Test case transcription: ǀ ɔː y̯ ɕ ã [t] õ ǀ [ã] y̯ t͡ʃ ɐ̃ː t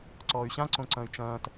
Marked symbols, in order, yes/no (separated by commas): no, no